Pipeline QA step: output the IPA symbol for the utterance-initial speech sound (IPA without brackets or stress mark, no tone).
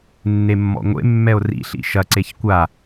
nː